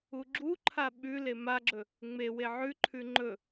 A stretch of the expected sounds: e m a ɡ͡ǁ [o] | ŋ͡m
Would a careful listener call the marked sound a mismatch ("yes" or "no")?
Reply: yes